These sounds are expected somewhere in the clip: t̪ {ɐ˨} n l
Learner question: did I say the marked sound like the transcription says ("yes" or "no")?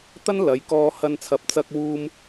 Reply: no